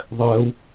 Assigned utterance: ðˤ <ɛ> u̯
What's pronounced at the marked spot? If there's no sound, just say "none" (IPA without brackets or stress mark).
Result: ɛ